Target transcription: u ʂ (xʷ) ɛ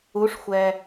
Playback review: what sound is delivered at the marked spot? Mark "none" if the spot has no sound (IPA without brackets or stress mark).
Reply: xʷ